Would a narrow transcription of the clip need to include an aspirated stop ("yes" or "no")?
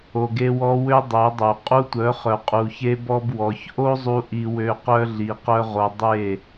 no